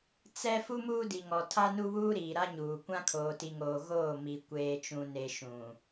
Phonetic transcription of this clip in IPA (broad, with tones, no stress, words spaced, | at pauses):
t͡sɛ˦ fu˦muː˦di˨ ŋɔ˨tʰa˦nu˦βuː˦ ɾiː˨ɾa˦ɲuː˨ kʷã˦kʰoː˨ti˨ŋoː˨ ɣoː˦˨mi˨ kʷeː˨t͡ʃũ˨ne˨ ʃũ˨